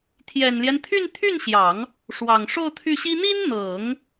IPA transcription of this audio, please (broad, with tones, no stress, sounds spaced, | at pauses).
t̪ʰ j ɛ˨˩ n l j ɛ˦ n t̪ʰ y˥˧ n t̪ʰ y˥˩ n ɕ j ɑ˨˩˦ ŋ | ʂ w ɑ˨˩ ŋ ʂ o˥˧ ʊ̯ t̪ʰ y˥˩ ɕ i˥ n̪ i˥ n n̪ ɤ˨˩˦ ŋ